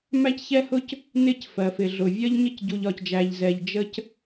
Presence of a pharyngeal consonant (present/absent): absent